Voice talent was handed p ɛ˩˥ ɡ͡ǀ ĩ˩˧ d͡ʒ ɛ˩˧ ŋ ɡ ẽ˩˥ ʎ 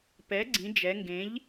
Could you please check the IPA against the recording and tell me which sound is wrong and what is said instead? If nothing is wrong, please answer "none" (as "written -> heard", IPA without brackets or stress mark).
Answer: none